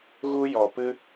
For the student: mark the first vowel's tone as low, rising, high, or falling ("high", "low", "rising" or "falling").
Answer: high